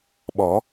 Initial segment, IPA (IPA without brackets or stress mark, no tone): ɓ